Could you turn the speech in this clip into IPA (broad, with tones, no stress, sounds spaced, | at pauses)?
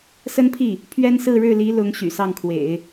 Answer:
s ə˥ n pʰ i˥˩ | pʰ ɥ ɛ˥ n s ɹ̩˥˧ ɻ ɻ̩˥˩ l i˧˥ l ʊ˧˥ ŋ ɕ y̰˨˩ s ɑ˥˩ ŋ kʰ w ḛ˨˩˦ ɪ̯